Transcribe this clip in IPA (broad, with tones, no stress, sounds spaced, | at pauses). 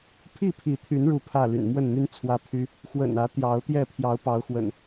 pʰ i˥˨ pʰ i˨˦ t̪ʰ y˨˦ n ɻ u˥˨ pʰ ä˥˨ l y̰˨˩ n m w ə˥˨ n n̪ y˦ n t͡sʰ w ä˦ pʰ y˦ | x w ə̰˨˩ n ä˨˦ t̪ j ɑ˨˦ ʊ̯ t̪ j ɛ˥˨ pʰ j ɑ˨˦ ʊ̯ p ɑ˨˦ ʊ̯ x w ə̰˨˩ n